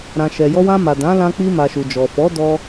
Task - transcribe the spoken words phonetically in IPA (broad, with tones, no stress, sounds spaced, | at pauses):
ɾ ã˨ ʃ ɛ˨ j ɔ˧ w ã˧ m a˨ d ã˨˦ l ã˧ k͡p i˧ m a˨ ʃ u˨ d͡ʒ ɔ˨ f ɔ˨˦ d ɔ˧